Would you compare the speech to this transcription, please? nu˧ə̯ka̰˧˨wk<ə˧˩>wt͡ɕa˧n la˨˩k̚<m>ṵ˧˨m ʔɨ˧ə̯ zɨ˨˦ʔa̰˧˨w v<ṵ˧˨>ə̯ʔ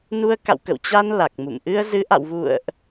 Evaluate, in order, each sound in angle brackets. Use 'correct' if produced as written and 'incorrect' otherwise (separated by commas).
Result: incorrect, correct, correct